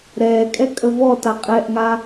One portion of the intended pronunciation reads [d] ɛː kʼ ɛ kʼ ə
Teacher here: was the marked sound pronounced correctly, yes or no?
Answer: no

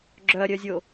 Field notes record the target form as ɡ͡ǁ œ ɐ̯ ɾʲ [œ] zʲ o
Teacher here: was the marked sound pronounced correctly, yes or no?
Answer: yes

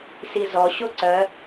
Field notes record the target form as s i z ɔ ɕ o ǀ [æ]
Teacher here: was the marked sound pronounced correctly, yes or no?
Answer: no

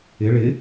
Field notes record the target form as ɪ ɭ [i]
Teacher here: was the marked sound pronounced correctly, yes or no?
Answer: no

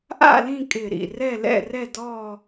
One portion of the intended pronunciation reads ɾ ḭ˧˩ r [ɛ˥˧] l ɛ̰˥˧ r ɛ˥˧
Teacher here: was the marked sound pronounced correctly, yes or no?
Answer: yes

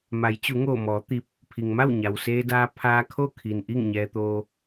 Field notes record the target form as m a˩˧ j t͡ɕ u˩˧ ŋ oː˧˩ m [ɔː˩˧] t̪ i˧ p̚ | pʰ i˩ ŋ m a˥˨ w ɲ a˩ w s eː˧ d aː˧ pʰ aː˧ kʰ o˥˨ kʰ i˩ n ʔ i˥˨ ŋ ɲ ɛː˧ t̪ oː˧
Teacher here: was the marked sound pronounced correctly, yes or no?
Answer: yes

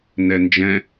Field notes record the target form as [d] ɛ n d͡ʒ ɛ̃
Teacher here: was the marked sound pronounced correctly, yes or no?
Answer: no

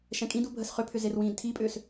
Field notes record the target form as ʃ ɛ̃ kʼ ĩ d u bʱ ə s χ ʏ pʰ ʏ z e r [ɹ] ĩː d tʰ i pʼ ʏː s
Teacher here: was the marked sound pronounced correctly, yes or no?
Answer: no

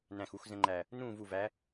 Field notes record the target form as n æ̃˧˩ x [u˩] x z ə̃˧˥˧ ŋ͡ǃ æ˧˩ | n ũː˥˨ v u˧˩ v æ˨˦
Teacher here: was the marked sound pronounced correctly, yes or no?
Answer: no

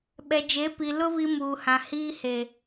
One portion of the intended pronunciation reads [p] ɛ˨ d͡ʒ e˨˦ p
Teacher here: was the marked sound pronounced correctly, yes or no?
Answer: no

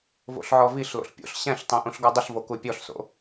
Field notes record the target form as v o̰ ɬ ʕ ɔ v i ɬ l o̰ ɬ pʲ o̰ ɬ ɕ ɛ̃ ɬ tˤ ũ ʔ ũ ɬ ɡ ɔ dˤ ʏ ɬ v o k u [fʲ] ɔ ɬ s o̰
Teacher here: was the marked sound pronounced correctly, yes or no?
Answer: no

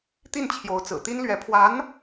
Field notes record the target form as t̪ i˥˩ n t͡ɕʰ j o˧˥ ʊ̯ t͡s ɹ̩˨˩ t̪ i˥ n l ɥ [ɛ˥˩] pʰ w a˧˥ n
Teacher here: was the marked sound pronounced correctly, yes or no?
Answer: no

